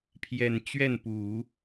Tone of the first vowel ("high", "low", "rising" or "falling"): low